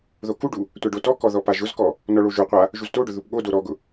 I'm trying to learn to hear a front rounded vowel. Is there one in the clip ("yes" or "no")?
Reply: no